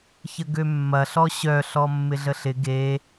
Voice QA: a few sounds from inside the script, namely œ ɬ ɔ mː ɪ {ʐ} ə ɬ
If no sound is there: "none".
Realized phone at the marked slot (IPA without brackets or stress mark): ɮ